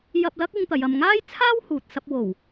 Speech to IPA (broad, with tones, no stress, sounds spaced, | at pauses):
j ɐ˧ p̚ l ɐ˥ k̚ ɪ˥ ŋ t̪ ɐ˨˧ j ɐ˧ m ŋ aː˥ j t͡sʰ aː˥ w h uː˨ t̚ s ɐ˧ p̚ w o˨˩ w